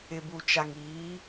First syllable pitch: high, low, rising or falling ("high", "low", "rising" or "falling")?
low